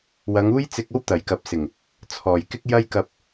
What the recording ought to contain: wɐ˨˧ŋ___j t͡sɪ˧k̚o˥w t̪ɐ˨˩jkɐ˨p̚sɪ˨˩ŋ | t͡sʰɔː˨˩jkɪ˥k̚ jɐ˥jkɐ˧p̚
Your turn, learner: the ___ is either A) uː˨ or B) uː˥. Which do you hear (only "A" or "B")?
B